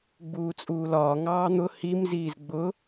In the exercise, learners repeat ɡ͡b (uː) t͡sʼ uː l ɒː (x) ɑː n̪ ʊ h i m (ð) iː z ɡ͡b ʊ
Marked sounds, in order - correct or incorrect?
correct, incorrect, incorrect

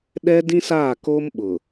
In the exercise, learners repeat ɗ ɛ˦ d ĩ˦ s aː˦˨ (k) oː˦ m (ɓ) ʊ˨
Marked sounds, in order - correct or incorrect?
correct, correct

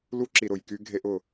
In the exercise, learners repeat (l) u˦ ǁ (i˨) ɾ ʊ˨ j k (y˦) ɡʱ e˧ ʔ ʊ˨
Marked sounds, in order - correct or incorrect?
correct, correct, correct

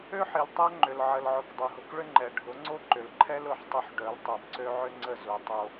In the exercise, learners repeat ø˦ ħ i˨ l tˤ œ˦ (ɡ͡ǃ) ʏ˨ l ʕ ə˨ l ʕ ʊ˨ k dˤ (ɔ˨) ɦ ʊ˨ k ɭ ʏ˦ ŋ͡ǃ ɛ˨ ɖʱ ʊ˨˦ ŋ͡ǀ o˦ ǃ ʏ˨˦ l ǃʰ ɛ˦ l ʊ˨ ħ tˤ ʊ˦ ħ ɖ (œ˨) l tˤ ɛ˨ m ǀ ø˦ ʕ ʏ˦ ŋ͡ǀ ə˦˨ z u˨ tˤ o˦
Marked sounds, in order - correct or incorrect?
incorrect, incorrect, incorrect

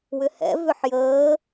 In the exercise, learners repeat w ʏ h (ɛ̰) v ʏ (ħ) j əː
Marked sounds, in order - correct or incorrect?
correct, correct

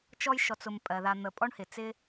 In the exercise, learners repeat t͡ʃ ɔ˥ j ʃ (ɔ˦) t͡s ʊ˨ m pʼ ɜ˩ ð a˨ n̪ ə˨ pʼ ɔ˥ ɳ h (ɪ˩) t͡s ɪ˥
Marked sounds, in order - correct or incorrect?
incorrect, correct

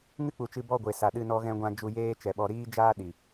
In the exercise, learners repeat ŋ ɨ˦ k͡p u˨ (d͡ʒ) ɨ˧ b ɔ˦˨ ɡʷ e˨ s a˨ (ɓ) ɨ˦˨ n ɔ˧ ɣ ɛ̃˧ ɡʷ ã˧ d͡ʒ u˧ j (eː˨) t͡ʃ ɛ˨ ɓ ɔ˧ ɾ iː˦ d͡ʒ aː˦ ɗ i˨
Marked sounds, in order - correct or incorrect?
incorrect, incorrect, incorrect

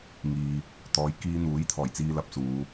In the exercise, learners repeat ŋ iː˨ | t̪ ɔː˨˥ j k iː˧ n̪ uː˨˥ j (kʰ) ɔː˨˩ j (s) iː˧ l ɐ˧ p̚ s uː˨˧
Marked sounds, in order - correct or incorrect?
incorrect, incorrect

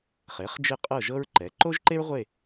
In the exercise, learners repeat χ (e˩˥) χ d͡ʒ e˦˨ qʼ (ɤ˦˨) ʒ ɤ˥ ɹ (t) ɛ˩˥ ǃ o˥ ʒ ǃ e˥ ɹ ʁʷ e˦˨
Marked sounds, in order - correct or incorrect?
correct, correct, incorrect

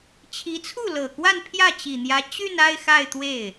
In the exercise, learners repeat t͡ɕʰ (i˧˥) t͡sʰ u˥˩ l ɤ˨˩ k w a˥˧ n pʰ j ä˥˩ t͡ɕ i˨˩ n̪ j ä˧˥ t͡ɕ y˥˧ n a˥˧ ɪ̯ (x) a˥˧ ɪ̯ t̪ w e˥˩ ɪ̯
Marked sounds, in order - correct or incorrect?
correct, correct

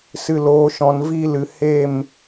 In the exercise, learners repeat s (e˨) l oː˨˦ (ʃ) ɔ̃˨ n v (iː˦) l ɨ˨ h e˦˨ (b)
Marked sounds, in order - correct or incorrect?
incorrect, correct, correct, incorrect

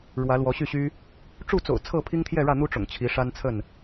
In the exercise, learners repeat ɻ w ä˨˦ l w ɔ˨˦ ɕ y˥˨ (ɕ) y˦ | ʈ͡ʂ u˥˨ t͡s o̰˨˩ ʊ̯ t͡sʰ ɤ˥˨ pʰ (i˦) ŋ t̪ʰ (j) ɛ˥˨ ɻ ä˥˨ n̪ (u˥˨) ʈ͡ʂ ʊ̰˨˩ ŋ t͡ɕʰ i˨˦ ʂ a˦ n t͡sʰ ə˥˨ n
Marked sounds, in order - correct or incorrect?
correct, correct, correct, incorrect

